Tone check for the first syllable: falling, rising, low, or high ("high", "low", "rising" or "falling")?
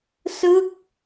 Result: falling